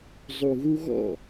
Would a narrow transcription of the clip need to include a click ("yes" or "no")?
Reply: no